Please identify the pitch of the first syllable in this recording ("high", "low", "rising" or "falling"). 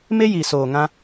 high